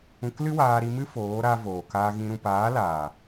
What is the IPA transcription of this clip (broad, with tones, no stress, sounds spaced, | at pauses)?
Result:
ũ˧ k l ɨ˦ w aː˧ ɾ i˧ m ɨ˦ f oː˨˦ ɾ a˧ v oː˨ k aː˧ ɣ ĩ˧ ɾ ũ˨ p aː˨˦ l aː˨